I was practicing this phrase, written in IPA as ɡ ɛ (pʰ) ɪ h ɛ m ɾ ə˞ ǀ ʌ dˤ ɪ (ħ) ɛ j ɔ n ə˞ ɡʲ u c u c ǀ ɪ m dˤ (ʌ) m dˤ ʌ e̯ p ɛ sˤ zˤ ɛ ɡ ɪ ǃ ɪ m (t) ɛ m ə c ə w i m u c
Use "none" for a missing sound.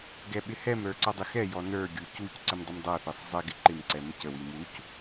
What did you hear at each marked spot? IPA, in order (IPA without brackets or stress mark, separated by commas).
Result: ɓ, x, ə, ǀ